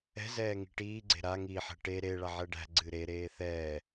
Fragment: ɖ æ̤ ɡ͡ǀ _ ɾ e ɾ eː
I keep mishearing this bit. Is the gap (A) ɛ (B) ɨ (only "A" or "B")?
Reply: B